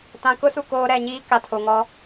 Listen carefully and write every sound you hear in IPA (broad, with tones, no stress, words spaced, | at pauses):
tã˨kʊ˦ su˨koː˦ ɾɛ˨ɲiː˦ ka˨tʰo˨ŋɔ˦